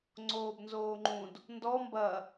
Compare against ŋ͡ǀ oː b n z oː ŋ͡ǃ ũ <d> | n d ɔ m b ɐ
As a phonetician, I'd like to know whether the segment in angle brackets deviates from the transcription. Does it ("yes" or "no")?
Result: no